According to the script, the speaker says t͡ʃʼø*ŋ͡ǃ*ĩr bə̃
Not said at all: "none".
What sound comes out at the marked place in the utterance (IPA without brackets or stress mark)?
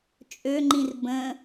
ŋ͡ǃ